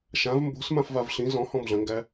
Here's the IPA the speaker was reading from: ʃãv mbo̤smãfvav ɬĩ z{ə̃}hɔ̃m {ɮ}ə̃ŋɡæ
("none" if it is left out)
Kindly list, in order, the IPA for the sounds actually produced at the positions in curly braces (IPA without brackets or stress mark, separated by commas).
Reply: ɔ̃, ɮ